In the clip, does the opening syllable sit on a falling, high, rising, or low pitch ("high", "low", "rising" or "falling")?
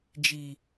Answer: low